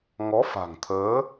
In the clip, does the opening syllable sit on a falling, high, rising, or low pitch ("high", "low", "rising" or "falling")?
rising